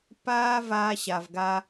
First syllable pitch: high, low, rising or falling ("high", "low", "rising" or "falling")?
high